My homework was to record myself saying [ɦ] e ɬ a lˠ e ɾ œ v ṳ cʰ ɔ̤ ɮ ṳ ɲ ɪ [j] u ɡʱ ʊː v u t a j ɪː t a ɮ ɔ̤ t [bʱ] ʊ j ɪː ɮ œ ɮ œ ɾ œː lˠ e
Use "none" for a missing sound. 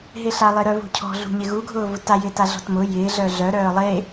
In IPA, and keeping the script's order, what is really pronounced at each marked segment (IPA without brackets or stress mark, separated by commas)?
ɦ, ɣ, m